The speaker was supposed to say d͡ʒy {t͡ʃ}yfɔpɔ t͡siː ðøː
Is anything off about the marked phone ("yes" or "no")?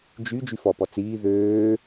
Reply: yes